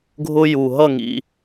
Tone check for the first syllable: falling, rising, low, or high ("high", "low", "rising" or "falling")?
high